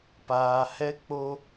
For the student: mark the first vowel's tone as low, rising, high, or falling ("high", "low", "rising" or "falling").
low